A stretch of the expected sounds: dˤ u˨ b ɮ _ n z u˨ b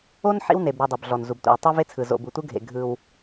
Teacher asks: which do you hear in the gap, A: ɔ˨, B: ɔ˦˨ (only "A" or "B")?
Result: A